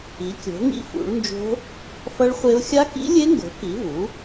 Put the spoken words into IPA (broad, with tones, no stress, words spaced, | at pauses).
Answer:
i˩˥kʲo̤˩˥ŋḭ˦˥ fṵ˩˥ɭnd͡ʒo̤˦˥ | fʌ˦˥ɭχʷe˦˥ʊ̯ xʲa˦˥kḭ˦˥lʲe˦˥ŋɡo̤˩˥ ki˩˥vu˩˥